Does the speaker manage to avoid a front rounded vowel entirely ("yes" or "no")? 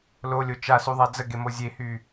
no